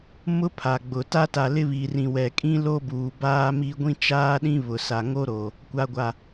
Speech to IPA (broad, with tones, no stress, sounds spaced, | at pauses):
m ʊ˦ pʰ a˨ ɡ͡b ʊ˨ t a˦ t a˨ l ɪ˦ β i˨ r ĩ˨ w ɛ˨ kʼ ĩ˦ l o˦ b uː˨ b aː˦ m i˦ ɡʷ ĩ˦ t͡ʃ aː˦ ɗ ĩ˦ β ʊ˨ s a˨ ŋ o˦ ɾ o˨ | kʷ a˨ ɡʷ a˨